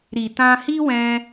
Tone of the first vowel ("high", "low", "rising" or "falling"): low